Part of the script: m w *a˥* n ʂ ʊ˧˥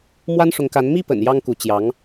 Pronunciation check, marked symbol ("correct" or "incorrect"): correct